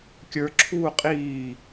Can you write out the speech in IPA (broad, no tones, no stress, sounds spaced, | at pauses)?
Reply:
kʲ ə˞ ǁʰ uː qʼ iː